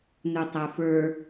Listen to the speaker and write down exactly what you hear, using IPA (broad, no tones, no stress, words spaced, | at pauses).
nutˤɛfə˞